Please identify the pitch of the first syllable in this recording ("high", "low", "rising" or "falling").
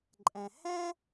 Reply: low